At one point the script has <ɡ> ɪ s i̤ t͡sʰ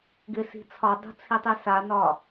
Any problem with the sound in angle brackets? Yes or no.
no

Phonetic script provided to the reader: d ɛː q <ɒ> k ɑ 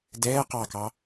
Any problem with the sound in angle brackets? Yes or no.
yes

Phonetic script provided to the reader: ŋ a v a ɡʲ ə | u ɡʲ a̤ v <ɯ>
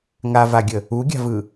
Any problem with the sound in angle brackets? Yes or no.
no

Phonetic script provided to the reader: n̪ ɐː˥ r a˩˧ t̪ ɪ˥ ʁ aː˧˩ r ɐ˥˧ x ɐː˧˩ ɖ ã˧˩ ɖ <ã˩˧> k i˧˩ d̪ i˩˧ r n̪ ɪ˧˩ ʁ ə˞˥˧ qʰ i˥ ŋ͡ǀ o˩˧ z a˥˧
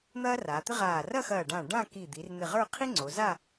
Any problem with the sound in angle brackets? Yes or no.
yes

